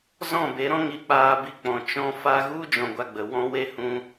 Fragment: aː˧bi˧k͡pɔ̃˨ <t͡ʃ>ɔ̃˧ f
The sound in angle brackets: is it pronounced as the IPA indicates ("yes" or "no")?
yes